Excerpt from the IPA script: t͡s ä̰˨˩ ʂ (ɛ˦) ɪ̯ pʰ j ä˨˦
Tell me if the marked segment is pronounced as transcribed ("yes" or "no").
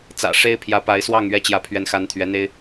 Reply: no